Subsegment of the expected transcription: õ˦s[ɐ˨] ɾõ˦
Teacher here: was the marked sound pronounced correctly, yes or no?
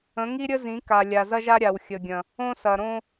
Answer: yes